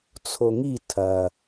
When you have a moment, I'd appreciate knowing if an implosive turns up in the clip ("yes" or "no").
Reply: no